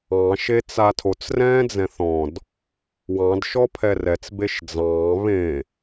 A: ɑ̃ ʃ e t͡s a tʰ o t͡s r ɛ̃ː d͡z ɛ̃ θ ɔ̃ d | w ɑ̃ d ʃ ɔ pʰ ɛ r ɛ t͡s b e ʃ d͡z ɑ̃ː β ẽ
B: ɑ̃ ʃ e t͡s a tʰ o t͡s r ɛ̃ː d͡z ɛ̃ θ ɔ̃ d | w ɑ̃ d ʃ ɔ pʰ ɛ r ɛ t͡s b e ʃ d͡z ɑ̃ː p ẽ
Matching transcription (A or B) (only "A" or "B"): A